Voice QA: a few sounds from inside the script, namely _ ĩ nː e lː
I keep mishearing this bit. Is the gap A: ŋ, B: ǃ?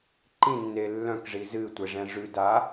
B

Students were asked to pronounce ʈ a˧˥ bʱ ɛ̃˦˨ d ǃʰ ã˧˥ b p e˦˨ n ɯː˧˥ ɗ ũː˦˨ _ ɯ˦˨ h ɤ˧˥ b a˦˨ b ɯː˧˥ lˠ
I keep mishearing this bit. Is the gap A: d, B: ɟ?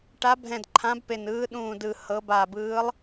A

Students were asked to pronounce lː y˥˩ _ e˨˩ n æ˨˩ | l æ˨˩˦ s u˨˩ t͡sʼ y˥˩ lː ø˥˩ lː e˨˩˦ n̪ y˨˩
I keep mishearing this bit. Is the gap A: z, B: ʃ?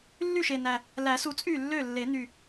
B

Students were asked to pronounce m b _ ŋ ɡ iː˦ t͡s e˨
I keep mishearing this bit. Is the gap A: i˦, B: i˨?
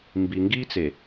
B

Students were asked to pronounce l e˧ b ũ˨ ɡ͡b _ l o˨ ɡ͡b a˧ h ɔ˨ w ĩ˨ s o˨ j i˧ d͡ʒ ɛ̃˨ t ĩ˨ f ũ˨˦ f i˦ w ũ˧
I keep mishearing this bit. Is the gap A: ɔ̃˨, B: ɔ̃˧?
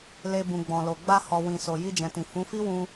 A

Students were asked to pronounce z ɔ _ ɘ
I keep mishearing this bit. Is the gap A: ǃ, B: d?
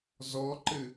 A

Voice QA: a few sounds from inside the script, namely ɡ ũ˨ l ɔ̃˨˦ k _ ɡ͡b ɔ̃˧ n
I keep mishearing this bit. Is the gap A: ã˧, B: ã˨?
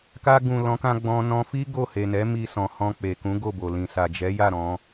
A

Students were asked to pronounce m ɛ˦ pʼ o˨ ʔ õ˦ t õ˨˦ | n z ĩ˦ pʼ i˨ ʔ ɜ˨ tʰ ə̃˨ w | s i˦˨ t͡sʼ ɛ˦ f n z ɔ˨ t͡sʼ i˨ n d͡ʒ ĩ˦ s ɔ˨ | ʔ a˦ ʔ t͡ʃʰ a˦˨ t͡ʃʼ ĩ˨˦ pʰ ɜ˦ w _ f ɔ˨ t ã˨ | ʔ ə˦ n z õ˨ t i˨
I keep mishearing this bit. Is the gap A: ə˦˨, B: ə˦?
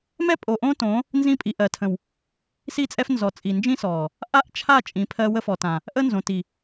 B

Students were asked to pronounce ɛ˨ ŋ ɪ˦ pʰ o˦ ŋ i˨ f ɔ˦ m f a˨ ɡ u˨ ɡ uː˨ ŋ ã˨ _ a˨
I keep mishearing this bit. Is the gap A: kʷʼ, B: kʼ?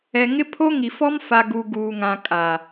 B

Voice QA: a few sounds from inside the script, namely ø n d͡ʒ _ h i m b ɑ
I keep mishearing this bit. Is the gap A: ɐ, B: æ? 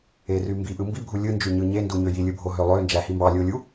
B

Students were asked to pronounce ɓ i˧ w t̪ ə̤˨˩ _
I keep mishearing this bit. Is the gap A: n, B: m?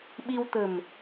B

